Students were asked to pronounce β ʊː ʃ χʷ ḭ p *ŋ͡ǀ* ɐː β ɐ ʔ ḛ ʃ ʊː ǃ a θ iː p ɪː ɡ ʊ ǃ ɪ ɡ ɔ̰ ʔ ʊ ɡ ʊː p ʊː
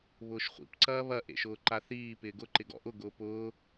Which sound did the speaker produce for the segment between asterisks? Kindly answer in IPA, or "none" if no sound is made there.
ǀ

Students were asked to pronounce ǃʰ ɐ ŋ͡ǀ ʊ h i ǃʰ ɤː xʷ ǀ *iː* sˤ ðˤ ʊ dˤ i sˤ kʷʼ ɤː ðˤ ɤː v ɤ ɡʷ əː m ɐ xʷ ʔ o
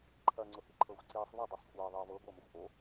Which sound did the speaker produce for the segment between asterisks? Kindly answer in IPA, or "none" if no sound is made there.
iː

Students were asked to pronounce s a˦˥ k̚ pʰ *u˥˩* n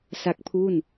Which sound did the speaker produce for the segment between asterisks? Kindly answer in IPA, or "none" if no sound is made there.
u˥˩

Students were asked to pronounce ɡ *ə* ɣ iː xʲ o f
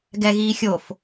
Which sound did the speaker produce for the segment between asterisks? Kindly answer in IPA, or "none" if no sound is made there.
ɛ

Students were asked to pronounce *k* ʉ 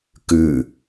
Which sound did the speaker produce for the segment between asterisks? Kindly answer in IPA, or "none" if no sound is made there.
k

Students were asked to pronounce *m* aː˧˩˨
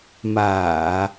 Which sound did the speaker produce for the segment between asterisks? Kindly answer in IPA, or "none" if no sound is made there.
m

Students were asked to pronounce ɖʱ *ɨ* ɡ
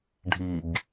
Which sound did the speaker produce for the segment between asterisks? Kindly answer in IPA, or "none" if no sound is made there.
i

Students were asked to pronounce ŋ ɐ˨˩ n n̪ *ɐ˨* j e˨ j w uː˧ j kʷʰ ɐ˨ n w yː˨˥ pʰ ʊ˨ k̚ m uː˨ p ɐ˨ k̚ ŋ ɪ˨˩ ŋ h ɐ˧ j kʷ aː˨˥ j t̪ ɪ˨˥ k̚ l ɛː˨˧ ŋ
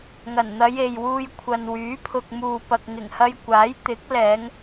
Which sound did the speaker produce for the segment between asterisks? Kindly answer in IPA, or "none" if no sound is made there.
ɐ˨˧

